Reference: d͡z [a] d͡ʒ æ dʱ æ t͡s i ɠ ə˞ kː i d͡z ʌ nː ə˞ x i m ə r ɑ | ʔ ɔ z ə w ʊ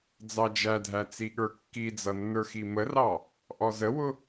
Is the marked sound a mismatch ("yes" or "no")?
yes